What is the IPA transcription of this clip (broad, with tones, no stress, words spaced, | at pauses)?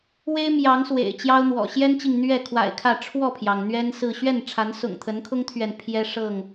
we˦ɪ̯mjɑ˨˦ŋ swḛ˨˩ɪ̯t͡ɕjɑ˦ʊ̯n̪wɔ̰˨˩ ɕjɛ˦nt͡ɕi˨ŋ n̪ɥɛ˥˨ kʰwa̰˨˩ɪ̯kʰä˥˨ ʈ͡ʂʰwɔ˥˨pʰjɑ˩ŋ n̪ɥɛ˦nsɹ̩˥˨ ɕɥɛ˥˨nʈ͡ʂʰa˨˦nsʊ̰˨˩ŋ t̪ʰə˨˦nkʰʊ˦ŋt̪ʰɥɛ˨n pʰjɛ˦ʂɤ˥˨ŋ